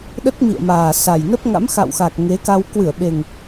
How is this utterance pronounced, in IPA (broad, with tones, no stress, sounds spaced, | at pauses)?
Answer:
ɗ ə˦˥ t̚ m ḭ˧˨ ə̯ m aː˨˩ s a˨˩ j n ə˦˥ p̚ ŋ a̰˧˥ m x a̰˧˨ w x a˨˩ k̚ ŋ e˨˦ k a˧ w k w ɨ˧˩ ə̯ ɓ e˨˩ ŋ